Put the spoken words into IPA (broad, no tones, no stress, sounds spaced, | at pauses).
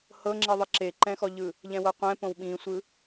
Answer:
h ɤ ŋ͡ǁ i ðˤ ɯ ǁ e ǃ ɛ̃ x ɔ ʎ ɯ | ʎ ɛ̃ w ɤ qʷ ɛ̃ p õ w ɓ ĩ sʷ ɯ